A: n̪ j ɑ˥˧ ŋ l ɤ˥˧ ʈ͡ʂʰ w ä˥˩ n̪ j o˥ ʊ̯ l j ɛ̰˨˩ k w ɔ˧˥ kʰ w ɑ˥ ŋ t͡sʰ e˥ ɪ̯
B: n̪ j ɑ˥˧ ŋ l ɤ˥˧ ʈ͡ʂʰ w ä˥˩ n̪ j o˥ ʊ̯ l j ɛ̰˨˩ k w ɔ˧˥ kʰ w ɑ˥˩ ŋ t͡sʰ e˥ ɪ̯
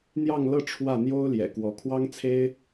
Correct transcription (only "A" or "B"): A